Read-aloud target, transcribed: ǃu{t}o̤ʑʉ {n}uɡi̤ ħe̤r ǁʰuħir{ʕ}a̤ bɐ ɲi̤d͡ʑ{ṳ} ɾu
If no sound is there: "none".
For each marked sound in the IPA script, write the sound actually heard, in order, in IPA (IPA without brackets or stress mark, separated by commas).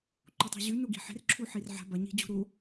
tˤ, n, ʕ, ṳ